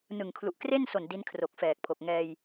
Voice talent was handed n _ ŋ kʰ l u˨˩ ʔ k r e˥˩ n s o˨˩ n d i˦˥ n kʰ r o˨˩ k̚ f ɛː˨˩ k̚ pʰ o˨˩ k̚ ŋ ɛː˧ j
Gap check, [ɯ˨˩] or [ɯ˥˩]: ɯ˨˩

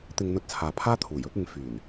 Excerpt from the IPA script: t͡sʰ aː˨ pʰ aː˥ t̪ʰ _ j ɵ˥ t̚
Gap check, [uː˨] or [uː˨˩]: uː˨˩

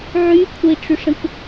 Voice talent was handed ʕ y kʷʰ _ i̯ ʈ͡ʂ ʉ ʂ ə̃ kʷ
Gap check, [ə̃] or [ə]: ə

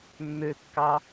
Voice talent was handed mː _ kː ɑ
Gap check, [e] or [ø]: ø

